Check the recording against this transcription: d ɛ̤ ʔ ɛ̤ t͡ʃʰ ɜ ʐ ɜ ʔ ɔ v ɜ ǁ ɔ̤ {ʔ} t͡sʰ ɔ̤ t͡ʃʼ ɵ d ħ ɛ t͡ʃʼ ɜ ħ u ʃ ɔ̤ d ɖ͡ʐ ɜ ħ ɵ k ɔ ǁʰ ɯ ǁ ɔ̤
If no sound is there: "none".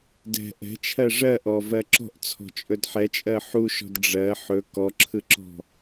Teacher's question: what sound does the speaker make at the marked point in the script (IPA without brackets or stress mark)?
ʔ